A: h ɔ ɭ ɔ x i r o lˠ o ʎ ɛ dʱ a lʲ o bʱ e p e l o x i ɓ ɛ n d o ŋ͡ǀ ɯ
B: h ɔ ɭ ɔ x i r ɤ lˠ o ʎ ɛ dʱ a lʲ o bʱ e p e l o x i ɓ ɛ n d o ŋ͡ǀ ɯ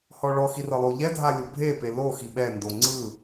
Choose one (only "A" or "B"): B